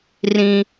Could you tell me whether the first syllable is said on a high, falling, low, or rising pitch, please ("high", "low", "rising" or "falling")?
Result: high